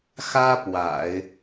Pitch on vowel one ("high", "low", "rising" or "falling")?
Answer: high